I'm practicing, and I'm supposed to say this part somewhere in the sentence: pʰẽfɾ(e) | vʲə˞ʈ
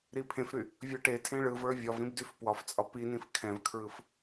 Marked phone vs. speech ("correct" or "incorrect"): incorrect